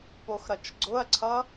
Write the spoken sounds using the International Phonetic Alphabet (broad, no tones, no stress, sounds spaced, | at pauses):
p o x ɾ ʌ t͡ʃ ɡ͡ǀ ʊ ɐ̯ ǀʰ ʌ